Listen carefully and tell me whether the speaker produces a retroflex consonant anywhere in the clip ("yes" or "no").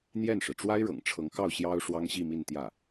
yes